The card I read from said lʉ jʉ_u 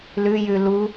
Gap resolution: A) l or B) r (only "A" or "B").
A